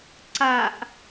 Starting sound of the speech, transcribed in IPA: ǀ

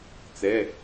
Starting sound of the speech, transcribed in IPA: t͡s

